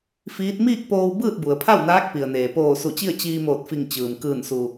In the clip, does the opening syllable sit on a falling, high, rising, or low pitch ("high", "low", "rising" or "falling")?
rising